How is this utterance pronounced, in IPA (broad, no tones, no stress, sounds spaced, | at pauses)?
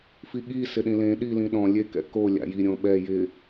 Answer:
f i ɠ i s ɪ ɗ ĩ l ẽ ɗ i l ĩ ɗ ɔ̃ lʲ e k ɛ̰ k o lʲ a̰ j i ɾʲ õ ɓ ɛ j ɪ